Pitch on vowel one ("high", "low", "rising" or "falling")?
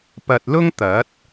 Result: low